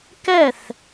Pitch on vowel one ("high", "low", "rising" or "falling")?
falling